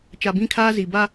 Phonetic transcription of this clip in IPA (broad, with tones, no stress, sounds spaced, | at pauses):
t͡ʃ a˨ b ĩ˦ kʰ aː˦ z iː˨ b a˦